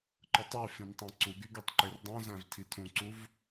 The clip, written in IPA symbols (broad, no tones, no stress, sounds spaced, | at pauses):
ǃ ɯ tˤ y f ĩ n tˤ ɑ̃ ǀ u ɡ y ɡ ø tˤ ǃ e r dˤ õ z æ̃ v tʰ i tʰ ũ ǀ u v